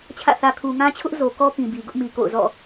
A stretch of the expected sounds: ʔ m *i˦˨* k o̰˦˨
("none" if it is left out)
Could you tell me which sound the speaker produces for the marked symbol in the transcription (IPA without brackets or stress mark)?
i˨